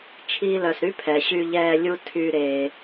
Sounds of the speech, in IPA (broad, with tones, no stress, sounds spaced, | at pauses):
t͡ʃʰ iː˨ l œ˩ s ɾ y˦ pʰ ɛ˩ ɕ y˨ ʎ ɛː˨ lʲ u˨ tʰ y˨ ɾ eː˨